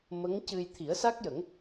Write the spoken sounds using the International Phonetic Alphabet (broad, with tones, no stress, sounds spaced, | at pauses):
m ə˧˥ ŋ c ɨ˧ j t̪ʰ i˨˩˦ ə̯ s a˦˥ k̚ j ə˨˩˦ ŋ